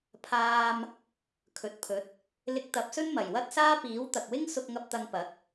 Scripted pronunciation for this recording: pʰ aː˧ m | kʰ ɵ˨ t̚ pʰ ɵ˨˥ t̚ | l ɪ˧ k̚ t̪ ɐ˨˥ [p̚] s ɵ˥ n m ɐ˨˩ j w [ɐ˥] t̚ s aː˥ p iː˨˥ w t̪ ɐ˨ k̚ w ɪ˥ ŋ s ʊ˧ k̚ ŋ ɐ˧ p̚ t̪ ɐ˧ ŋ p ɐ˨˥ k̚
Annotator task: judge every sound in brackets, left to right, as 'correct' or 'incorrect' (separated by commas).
correct, correct